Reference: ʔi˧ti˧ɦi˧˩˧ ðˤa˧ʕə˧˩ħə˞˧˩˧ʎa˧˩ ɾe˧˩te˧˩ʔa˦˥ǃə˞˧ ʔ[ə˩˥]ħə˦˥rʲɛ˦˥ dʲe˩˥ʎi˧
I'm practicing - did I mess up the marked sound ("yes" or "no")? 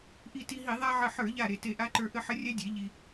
yes